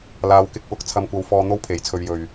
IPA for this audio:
l aː˨˧ w k ɪ˨˥ k̚ w ʊ˨˥ k̚ t͡sʰ ɐ˧ m kʷ ɐ˧ w f ɔː˧ n̪ o˥ w pʰ e˨˥ j t͡sʰ ɵ˧ ɥ j ɵ˨ ɥ

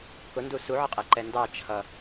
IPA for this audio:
k ʊ n d u s u ʕ ʌ qʼ ɛ ǃ ɛ n d ɑ t͡ʃʰ ʌ

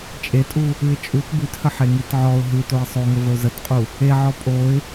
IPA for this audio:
t͡ʃʼ e tʼ u | ʉ ɪ̯ t͡ʃʼ u t b ʉ t h ə ħ e ŋ i t ʕ ɔ ʊ̯ ɦ ʉ t o ɪ̯ sˤ o ŋ ə v ə ʊ̯ z ə t qʼ u | e ʕ ɔ pʼ o ɪ̯

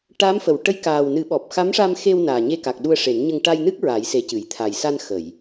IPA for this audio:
ʈ a˧˥ m f ə˨˩˨ w ʈ ə˧˥ j k aː˨˩ w n ɨ˨˩˦ ɓ ɔ˨˩ p̚ x a˧˥ m ʂ a˧ m x e˧ w n aː˨˩ ɲ e˧ k a˨˩ k̚ ɗ u˧ ə̯ ʂ e˨˩˦ n ɲ ə˧ ŋ ʈ a˧ j n ɨ˦˥ k̚ ɹ a˨˩˦ j s e˨˩˦ c ɨ˨˩˨ j t̪ʰ a˨˩ j s a˧ n x ə˨˩˨ j

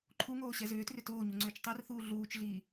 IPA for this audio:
ǃʰ u ŋ oː ɕ ɛ z ʏː t r ʏ t oː ɲ u ŋ͡ǀ ʏː t͡ʃ tˤ ɛ r θ uː ɮ uː t͡ʃ ɮ iː

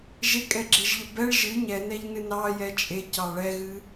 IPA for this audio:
ʒ e kʼ ɛ ɡ͡ǁ e ʒ ʎ ə b ɛ ɭ ʒ ɨ ɲ ɛ n ɛ ʎ n ɨ n ɑ j ɛ t͡ʃʼ e c ɑ ɭ ɛ ɣ ɨ

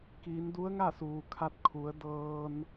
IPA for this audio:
k iː˩˧ n d u˧˥ ə̯ ŋ a˥˨ s uː˩ kʰ a˧ t̚ kʰ u˩˧ ə̯ d ɤː˧ n

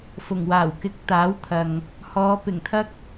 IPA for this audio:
f ʊ˨˩ ŋ w aː˨˩ w k ɪ˨˥ k̚ t̪ aː˨˥ w t̪ʰ ɐ˨ ŋ | h ɔː˨˧ p ɪ˨˩ ŋ t̪ʰ ɐ˥ k̚

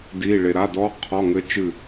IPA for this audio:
d i˧˥˧ ɭ e˧ ɾ a˧˥˧ d ɔ˦˥ qʰ ɔ˧˥˧ ŋ ɘ˦˥ t͡ʃ ɨ˥˧

